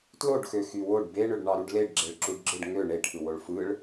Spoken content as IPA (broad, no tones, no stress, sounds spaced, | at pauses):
t l o ɖ x ø x y w o ɖ b e ɳ ø ɖ ɳ ɑ ɾ u ɖ l e ɖ ɡ͡ǁ e ɭ ǁ u ɖ ɡ͡ǁ ɯ ɖ ŋ ø ɳ e ʈʰ ɯ w o ɭ f ɯ ɭ